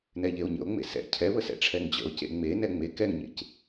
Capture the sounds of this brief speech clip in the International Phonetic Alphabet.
n ɛ ʎ e o̯ ɲ ə̰ o̯ ŋ͡m ḛ s ɛ̰ cʰ ɛ β ə s ɛ̰ ʈ͡ʂʰ ɛ ŋ d͡ʑ ə̰ o̯ c ḛ ŋ͡m e n ɛ ŋ͡m e k ɛ ŋ ɲ ḛ c

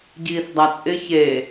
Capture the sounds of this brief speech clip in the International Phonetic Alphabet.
ɟ iː θ dˤ a t͡sʼ ɪ ç e

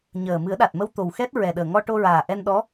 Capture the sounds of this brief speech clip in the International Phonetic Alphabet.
ɲ əː˨˩ m ɨ˨˩˦ ə̯ ɗ a˨˩ t̚ m ə˧ w t̪ o˨˩ w x ɛ˦˥ t̚ ɹ ɛ˨˩ ɗ əː˨˩ ŋ ɔ˧ ʈ o˧ ɹ aː˨˩ ʔ ɛ˧ n ɗ ɔ˧˥

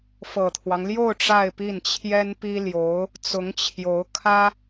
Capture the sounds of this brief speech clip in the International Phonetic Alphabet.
f ɤ˨˩ t̪ʰ w ɑ˦ ŋ l j o˥˧ ʊ̯ ʈ͡ʂ a˥˧ ɪ̯ p i˥˩ n t͡ɕʰ j ɛ˥ n p i˥ l j o˧˥ ʊ̯ | t͡s ʊ˧˥ ŋ t͡ɕʰ j o˧˥ ʊ̯ kʰ ä˥

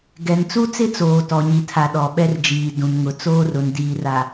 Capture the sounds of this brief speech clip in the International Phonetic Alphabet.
ɡ ɛ˨ n t͡s u˦ t͡s ɪ˦ t͡s oː˨ t ɔ˨ ɲ i˨ tʰ a˨ ɗ ɔ˨ ɓ ɛ˦ r d͡ʒ iː˨ d ũ˨ n ŋ ʊ˨ t͡s oː˦ r ʊ˨ n d iː˨ r a˨

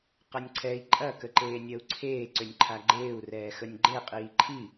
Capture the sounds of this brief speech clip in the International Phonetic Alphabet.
q ɐ nʲ ǀʰ ɛ i̯ ǃʼ ɐ k ə ǃ eː nʲ ɐ u̯ ǀʰ eː ǀ ʏ nʲ ǃʰ a ɡ͡ǃ eː u̯ r ɛː x ə nʲ ɡ͡ǃ e qʼ iː ǃʰ i

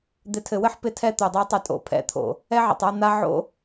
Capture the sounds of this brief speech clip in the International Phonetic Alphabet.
d̪ ɪ˨ tʰ ɘ˨ w ɘ˦ ħ p ɪ˦ tʰ ɛ˦ t̪ o˨ dˤ ɛ˦ tˤ ɘ˦˨ tʼ o̰˨ pʰ ɛ̰˨˦ t̪ʰ o̰˨ | ɛ˦ ʕ ə̰˨ tˤ a˦ n̪ a˦ ʕ o̰˦

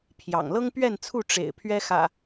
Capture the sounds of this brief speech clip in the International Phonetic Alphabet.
pʰ j ɑ̰˨˩ ŋ l ɤ˦ ŋ p ɥ ɛ˥˨ n t͡sʰ u˥˨ ʈ͡ʂ ḛ˨˩ ɪ̯ pʰ ɥ ɛ˦ x ä̰˨˩

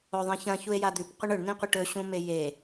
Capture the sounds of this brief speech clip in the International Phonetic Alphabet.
o ðˤ ĩ ç ɐ̃ ç u e̯ j a d̪ ʉ p qʷ ɐ ɳ ɵ ɳ n ĩ qʷ ɨ ʈ ɵ ɕ ũ m e j e

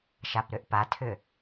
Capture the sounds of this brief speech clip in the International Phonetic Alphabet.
ʃ a p ɾ ʏ ʔ p a tʰ ʏ

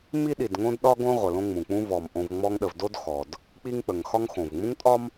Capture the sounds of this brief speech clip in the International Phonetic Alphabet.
m i˥ ɗ i˨ d ŋ õ˥ d ɗ ɒ˥ ɡ õ˥ ʁʷ ə˩ l õ˦ ŋ͡m ũ˩ k͡p ũ˦ v ɔ˩ m ʔ õ˨ v ŋ͡m ɔ˦ ŋ ɗ ə˨ v d o˥ d x ɔ˩ d | k͡p i˦ ŋ k͡p ə˩ ŋ x ɒ˦ ŋ x õ˩ v ŋ͡m ũ˥ ŋ tʼ ɒ˥ m

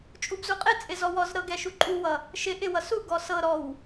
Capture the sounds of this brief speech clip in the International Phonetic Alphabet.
t͡ʃʼ u b z u qʼ ɪ t͡sʼ ɪ z ɔ w ɔ z ɾ ɤ ɡ ɛ ʃ u ǃʼ u w ʌ | ʃ ɪ ʔ ɪ w ʌ s u ɡ ɔ s ɤ ɾ ɔ w

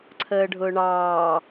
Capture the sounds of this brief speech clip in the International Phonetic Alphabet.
ǀʰ əː ɖʱ ʊː ɳ ɑː

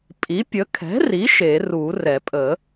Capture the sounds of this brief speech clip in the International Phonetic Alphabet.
pʼ i˩˥ pʲ ə˩˥ kʰ ɛ̤˩˥ r i˩˥ ʃ e˨˩˦ r u˨˩˦ r ɛ˨˩˦ pʼ ə˨˩˦

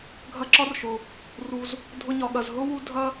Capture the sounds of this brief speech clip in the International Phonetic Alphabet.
ɡʱ ɐ˦ ǁ ɒ˥ r ʃ ʊ˩ | r u˨ z | dʱ ʊ˦ ɲ ɒ˨ ɠ ɐ˨ z ɦ ʊ˥ w u˦ dʱ ɐ˥

